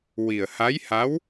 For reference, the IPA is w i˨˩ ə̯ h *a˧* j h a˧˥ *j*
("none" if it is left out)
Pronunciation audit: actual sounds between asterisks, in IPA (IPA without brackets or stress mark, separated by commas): a˧˥, w